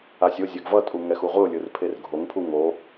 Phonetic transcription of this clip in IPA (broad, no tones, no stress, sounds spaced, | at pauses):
a sʲ o zʲ ɛ ɡ v ʌ tʼ u ŋ ɛ x u ʁʷ ɯ ʊ̯ lʲ ɯ r pʰ e r ɡʱ o ŋ pʰ u ŋ o